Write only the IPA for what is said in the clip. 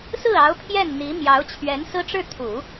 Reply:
s ɹ̩˥˩ ɑ˧˥ ʊ̯ pʰ j ɛ˥˩ n n̪ i˧˥ m j ɑ˧˥ ʊ̯ t͡ɕʰ ɥ ɛ˧˥ n s ɹ̩˥ ʈ͡ʂ ɻ̩˥˩ t̪ʰ u˨˩˦

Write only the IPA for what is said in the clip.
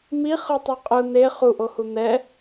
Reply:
m i χ ɯ tˤ u qʼ ɯ n̪ e χ u ʔ o h u n̪ ɛ

